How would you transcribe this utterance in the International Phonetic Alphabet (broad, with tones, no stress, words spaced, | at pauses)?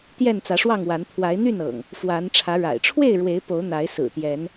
t̪jɛ˥˨nt͡sä˨˦ʂwɑ˥˨ŋwa˨˦n t̪ʰwa˨˦ɪ̯ n̪y˥˨n ɤ̰˨˩ŋ | fwa˨˦n ʈ͡ʂʰä˨˦ ɻa̰˨˩ɪ̯ ʈ͡ʂʰwe˥˨ɪ̯ ɻwe˨˦ɪ̯po˨˦ʊ̯n̪a˨˦ɪ̯ sɹ̩˨˩t̪jɛ˨˦n